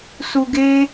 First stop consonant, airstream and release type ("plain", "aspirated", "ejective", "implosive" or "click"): plain